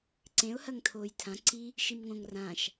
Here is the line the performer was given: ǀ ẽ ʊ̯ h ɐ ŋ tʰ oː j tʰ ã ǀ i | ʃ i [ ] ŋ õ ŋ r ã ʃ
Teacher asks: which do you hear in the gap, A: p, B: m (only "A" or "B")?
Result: B